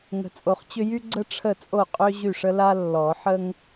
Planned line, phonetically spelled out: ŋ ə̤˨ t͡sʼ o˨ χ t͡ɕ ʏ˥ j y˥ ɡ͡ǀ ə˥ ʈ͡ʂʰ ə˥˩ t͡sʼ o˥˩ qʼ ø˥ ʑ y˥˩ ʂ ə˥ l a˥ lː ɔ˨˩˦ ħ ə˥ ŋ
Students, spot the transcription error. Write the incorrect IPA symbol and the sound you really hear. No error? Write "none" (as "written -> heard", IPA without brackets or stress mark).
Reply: none